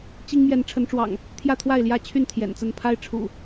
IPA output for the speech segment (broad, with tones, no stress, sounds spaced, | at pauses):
t͡ɕ i˦ ŋ m j ɛ˨˦ n ʈ͡ʂʰ ə˨˦ n ʈ͡ʂ w ɑ̰˨˩ ŋ | t̪ʰ j ä˥˨ t̪ʰ w a˥˨ ɪ̯ l j ä˥˨ t͡ɕʰ y˥˨ n t̪ʰ j ɛ̰˨˩ n t͡s ə˥˨ n pʰ a˦ ɪ̯ ʈ͡ʂʰ ṵ˨˩